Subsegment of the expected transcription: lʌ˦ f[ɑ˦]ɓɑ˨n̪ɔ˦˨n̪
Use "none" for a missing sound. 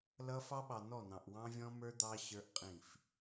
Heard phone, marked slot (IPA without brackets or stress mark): ɑ˦